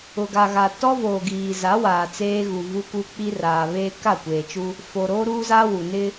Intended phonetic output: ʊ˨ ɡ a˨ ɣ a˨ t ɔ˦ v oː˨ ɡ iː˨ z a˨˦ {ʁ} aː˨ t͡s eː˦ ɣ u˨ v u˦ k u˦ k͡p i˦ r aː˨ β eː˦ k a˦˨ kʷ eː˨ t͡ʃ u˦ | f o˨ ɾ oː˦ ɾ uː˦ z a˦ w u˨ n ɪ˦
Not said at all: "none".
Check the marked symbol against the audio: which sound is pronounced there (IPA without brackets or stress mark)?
w